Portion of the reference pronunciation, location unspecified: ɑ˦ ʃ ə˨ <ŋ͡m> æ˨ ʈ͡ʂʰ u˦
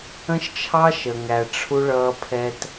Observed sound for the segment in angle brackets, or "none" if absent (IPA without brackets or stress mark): ŋ